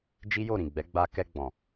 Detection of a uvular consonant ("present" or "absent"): absent